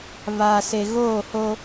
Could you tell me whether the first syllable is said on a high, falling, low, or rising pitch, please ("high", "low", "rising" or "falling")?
low